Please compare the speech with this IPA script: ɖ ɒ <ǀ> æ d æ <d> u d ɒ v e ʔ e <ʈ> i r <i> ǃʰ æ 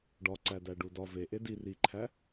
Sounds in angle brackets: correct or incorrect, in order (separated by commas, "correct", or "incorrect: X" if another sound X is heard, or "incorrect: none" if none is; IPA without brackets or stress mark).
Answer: correct, incorrect: ɖ, incorrect: d, correct